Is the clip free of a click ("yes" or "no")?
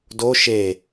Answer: yes